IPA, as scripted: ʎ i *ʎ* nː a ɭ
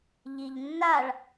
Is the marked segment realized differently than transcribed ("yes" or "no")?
no